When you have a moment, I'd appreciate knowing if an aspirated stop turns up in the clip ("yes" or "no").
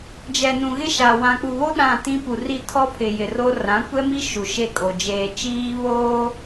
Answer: yes